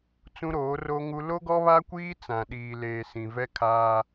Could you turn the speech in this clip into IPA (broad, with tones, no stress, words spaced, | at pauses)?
t͡sũ˦ɾoː˨˦ro˦ŋu˦ lo˦ɡɔ˦βa˦kʷiː˦ t͡sã˨ ɗiː˨leː˨ sĩ˨vɛ˦kʰaː˦